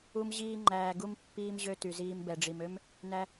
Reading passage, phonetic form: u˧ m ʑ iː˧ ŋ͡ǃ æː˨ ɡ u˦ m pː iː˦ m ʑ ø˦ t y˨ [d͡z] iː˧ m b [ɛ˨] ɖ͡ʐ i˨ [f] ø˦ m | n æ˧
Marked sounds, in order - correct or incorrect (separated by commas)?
incorrect, correct, incorrect